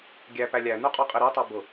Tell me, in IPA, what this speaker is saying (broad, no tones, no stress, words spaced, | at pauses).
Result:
ɡʲæpæ lʲænuqʼɔqʼi ɾɔtˤɑ bʊ